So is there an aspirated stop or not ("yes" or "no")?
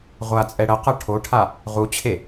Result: yes